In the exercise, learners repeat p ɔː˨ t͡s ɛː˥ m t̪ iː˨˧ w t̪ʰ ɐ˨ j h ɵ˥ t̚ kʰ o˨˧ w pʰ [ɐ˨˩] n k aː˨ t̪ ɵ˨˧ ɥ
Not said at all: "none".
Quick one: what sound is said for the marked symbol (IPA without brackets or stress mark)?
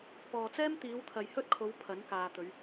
ɐ˨˥